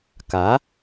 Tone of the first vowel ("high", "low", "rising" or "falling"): rising